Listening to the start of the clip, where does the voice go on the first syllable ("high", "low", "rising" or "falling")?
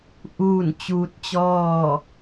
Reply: falling